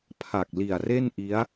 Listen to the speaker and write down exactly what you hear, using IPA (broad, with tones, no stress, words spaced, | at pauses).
pʰa˨˩k̚ li˨˩a̯re˥˩nʔi˦˥a̯